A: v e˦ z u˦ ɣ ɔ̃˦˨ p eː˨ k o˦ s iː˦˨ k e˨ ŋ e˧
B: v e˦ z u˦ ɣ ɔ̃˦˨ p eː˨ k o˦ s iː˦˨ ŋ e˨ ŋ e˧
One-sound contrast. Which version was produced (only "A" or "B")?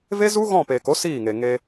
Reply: B